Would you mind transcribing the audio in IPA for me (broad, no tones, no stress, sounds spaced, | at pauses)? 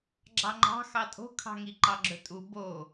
ɡ͡ǁ ɑ ŋ͡ǃ ɑ̤ x ɑ tʼ o̤ kʰ ɑ̤ ŋ i ǃ ɑ ɡ͡ǁ ɵ tʼ u b o